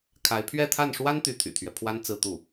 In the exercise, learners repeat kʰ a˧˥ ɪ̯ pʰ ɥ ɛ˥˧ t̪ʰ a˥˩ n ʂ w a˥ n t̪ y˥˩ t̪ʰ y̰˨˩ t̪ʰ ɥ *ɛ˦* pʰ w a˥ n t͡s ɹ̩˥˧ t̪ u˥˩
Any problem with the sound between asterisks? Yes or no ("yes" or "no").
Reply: no